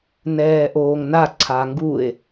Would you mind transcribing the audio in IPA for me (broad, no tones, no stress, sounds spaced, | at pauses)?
n ɛː ʔ oː ŋ n a ǀʰ a ŋ ɡ u e̯